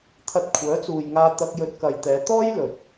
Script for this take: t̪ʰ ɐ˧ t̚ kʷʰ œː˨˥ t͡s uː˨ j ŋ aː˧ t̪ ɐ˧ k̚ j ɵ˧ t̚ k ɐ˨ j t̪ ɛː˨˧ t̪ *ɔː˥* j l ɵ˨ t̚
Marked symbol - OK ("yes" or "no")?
yes